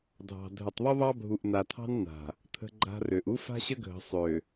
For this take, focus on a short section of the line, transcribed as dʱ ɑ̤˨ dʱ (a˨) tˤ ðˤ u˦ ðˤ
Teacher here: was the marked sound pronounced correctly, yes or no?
no